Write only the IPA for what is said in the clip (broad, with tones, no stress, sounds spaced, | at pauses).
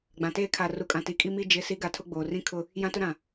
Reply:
ɡ͡b ã˨ t eː˦ kʰ a˨ r u˨ kʼ ã˨ t i˨ kʼ i˦ m i˦ d͡ʒ ɪ˨˦ s i˨˦ ɡ a˨ tʰ ʊ˦ ɡ͡b oː˨ r ĩ˦ kʰ ʊ˦ | j ã˦ t ʊ˦ ɾ ã˨